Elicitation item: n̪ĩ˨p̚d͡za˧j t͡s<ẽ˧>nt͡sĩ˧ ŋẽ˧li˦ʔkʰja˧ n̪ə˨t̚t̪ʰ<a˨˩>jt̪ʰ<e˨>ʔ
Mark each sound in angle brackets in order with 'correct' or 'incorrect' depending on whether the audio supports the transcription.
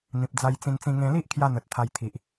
incorrect: ĩ˧, incorrect: a˧, incorrect: i˨

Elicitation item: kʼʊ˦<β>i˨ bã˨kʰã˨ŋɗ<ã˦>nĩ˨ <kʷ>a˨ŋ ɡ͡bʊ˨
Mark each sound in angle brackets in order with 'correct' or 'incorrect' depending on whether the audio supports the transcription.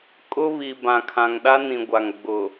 correct, incorrect: a˦, incorrect: ɡʷ

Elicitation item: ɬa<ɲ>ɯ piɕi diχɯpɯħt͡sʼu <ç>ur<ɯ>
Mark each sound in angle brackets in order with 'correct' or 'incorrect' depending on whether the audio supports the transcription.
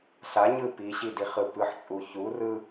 correct, correct, correct

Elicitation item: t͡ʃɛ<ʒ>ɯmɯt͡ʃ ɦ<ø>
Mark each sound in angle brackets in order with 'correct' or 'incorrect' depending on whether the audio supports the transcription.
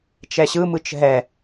incorrect: ɕ, incorrect: ɛ

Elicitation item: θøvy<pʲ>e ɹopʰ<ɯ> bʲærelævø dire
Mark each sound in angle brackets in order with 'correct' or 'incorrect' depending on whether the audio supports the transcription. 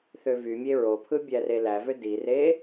incorrect: mʲ, correct

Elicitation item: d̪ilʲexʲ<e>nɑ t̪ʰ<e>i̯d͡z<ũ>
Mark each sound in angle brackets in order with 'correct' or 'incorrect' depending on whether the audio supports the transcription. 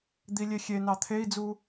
correct, correct, incorrect: u

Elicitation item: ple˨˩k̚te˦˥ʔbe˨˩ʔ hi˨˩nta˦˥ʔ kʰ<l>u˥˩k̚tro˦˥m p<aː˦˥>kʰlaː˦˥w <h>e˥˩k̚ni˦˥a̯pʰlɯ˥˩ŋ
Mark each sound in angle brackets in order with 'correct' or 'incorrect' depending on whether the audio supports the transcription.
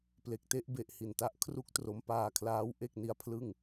incorrect: r, incorrect: aː˧, incorrect: ʔ

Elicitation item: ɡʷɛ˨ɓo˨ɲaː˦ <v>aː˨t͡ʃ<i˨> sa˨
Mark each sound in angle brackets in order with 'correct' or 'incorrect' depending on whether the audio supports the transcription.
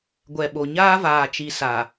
correct, correct

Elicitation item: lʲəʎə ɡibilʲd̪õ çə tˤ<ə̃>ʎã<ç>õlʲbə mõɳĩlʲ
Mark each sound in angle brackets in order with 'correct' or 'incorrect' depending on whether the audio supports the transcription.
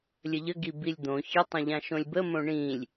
correct, incorrect: ʃ

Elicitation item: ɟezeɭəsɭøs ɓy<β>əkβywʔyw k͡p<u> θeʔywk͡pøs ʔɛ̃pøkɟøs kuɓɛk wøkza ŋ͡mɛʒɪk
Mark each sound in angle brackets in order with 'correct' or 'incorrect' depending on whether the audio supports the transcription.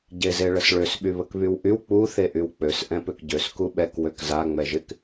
correct, correct

